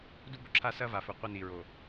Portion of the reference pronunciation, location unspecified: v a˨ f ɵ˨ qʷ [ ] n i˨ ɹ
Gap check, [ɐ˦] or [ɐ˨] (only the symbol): ɐ˦